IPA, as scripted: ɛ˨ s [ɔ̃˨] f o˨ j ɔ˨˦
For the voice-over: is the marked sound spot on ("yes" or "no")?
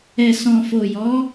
yes